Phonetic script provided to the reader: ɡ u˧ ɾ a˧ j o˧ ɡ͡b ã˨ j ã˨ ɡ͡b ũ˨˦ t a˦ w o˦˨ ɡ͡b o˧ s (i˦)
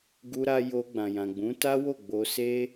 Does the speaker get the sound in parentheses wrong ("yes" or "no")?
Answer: yes